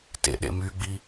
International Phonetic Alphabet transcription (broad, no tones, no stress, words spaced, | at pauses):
tḛɗḛ myɡ͡bi